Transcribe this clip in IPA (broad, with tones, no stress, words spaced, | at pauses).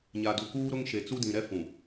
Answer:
ɲa˨du˨kuː˦ɾʊ˦ŋ ʃe˨t͡su˦dĩ˨ɾɛ˦ fũ˨